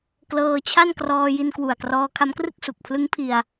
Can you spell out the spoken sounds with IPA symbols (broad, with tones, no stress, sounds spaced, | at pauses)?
k l ɤː˧ t͡ɕʰ a˥˩ n k r ɔː˧ j i˧ n k w u˨˩ a̯ k r ɔː˧ kʰ a˦˥ m k r ɯ˥˩ k̚ s u˨˩ k̚ pʰ l ɯ˦˥ ŋ pʰ i˧ a̯